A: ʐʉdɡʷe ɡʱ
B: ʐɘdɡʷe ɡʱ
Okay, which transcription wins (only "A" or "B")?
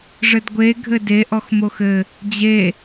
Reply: B